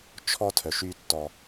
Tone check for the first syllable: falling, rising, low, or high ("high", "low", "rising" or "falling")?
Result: high